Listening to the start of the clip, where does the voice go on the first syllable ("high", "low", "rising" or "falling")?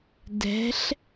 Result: rising